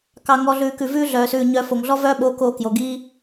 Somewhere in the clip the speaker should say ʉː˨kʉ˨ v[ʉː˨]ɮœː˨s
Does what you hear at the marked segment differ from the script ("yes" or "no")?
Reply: yes